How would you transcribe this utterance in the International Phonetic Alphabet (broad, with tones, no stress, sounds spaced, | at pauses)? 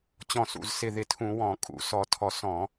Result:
t͡ɕ ɔ̃˧˩ s ṵ˧˩ z s ɪ˧˩ ð ɪ˧˩ tʰ ũ˧˩˧ w ɔ̃˧˩˧ kʼ ṵ˧˩˧ s ɔ˧˩ tʰ ɔ˧˩ s ɔ̃˧˩˧